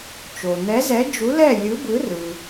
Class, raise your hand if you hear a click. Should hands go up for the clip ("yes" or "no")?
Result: no